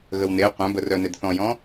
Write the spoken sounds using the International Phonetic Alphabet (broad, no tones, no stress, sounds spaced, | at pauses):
ɣ ə w n e qʷ œ̃ b ə r œ n e d θ ɔ̃ j ɔ̃